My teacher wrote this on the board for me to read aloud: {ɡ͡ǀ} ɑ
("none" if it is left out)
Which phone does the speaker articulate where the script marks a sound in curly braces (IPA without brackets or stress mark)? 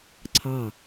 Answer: ǀʰ